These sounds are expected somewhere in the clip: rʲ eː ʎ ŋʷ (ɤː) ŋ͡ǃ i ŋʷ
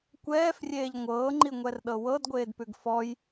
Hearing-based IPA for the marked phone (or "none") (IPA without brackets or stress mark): ɤː